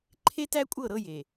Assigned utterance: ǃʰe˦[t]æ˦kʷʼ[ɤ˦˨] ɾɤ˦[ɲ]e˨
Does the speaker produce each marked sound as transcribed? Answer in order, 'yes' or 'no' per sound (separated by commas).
yes, yes, no